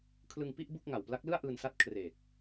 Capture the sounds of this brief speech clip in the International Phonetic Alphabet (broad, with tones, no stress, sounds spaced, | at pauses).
kʰ l ɯ˧ ŋ p i˥˩ ʔ b u˥˩ k̚ ŋ a˨˩ w p l a˦˥ k̚ l ɯ˥˩ a̯ ʔ ɯː˧ n s a˦˥ t̚ kʰ r e˨˩ k̚